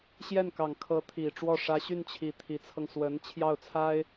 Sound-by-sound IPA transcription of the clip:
ɕ j ɛ˥˩ n k ɑ˨˩ ŋ kʰ ɤ˧˥ t̪ʰ i˨˩ ʈ͡ʂ w ɔ˥˩ ʂ ä˧˥ ɕ y˥˩ n t͡ɕʰ i˨˩ t̪ʰ i˧˥ t͡sʰ ɤ˧ ŋ s w ə˧˥ n t͡ɕʰ j ɑ˥˩ ʊ̯ t͡sʰ a˥ ɪ̯

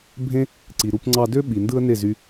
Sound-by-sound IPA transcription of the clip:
bʱ ẽ˥ | ǀ i˩ ɾ u˧ p ŋ͡ǀ ɑ˧ d ø˥ ɓ i˩ n d ɯ˥ ə̯ n e˥˩ z y˧

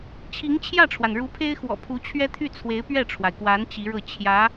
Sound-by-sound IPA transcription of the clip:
t͡ɕʰ i˧˥ ŋ t͡ɕʰ j ä˥˩ ʈ͡ʂʰ w a˩ n ɻ u˧˥ pʰ e˥ ɪ̯ x w ɔ̰˨˩ pʰ u˧˥ t͡ɕʰ ɥ ɛ˥ t̪ʰ y˥˩ t͡sʰ w e˧˥ ɪ̯ p ɥ ɛ˥˩ ʈ͡ʂʰ w a˩ ɪ̯ k w a˧˥ n t͡ɕ i˧˥ ɻ ɤ˥˩ t͡ɕʰ j ä˧˥

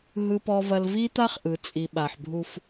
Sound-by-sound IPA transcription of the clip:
ɦ ɯ˨ p ɔ˨ v ɐ˨ l v i˦ t̪ a˦ χ ʔ ɯ˨ t͡sʼ i˨ ɓ a˨ ħ bʱ u˦ f

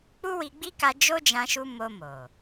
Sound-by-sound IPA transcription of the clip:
k͡p u˦ w i˧ ɡ͡b i˦ k a˧ d͡ʒ o˦ d͡ʒ ã˧ ʃ u˧ m o˧ m o˨

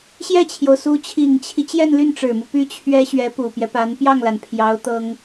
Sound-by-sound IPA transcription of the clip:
ɕ j ɛ˥˩ t͡ɕʰ j o˩ ʊ̯ s u˧˥ t͡ɕʰ i˨˩ ŋ t͡ɕʰ i˦ t͡ɕ j ɛ˥˧ n l y˥˩ n ʈ͡ʂ ɻ̩˨˩ m u˦ p y˥ t͡ɕʰ ɥ ɛ˥ ɕ ɥ ɛ˧˥ p u˨˩ p j ɛ˦ p a˧˥ n p j ɑ˥˩ ŋ l a˩ n pʰ j ɑ˧˥ ʊ̯ t̪ ɤ˥ ŋ

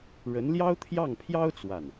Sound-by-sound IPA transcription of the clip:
ɻ ə˧˥ n l j ɑ˥ ʊ̯ t̪ʰ j ɑ˥˩ ŋ pʰ j ɑ˥ ʊ̯ t͡s w a˥˩ n

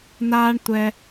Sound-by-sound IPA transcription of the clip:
n aː˧ ɳ tʷ ɛ˧

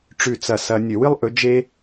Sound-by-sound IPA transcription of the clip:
ʈ͡ʂ ʉ˦˨ t͡s ɐ˦˨ s ɐ˦ nʲ ɵ˧˩˧ w ɨ˦ lˠ ʔ ɵ˨˦ d͡ʒ e˦

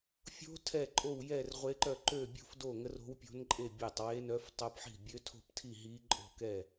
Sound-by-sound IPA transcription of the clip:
fʲ o̤˦˥ tʰ ɛ˥˧ ǃʼ o˥˧ w j ɛ˥˧ r ʁʷ e˦˥ ǃ œ˥˧ ǃ ø˥˧ bʲ o̤˥˧ f d o˥˧ ŋ ə˦˥ r o̤˦˥ w pʲ o̤˦˥ n ǃʼ e˥˧ bʲ ɛ˥˧ tˤ w e˦˥ n œ˦˥ f tˤ o˦˥ p ħ i̤˥˧ bʲ ø˦˥ tʰ o̤˥˧ p tʰ i˥˧ ɦ i˦˥ ǃʼ o̤˥˧ k ɛ˥˧

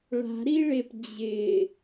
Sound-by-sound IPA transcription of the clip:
ɭ a̤ ɾ i ɭ e p d͡ʑ ɪː

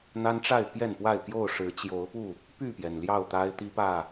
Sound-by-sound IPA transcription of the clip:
n̪ a˦ n ʈ͡ʂ a˥˨ ɪ̯ p j ɛ˥˨ n p w a˥˨ ɪ̯ p j o˥˨ ʊ̯ ʂ ɻ̩˨˦ t͡ɕ j o˨˦ ʊ̯ p u˥˨ | p y˥˨ p j ɛ˩ n l j ɑ˥˨ ʊ̯ t̪ a˦ ɪ̯ t̪ i˦ p ä˥˨

